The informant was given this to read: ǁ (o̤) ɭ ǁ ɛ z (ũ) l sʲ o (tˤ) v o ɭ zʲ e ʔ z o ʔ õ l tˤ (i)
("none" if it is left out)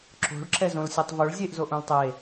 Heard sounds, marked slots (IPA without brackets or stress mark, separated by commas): o̤, õ, tˤ, e